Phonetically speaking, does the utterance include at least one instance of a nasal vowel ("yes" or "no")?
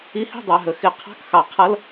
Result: no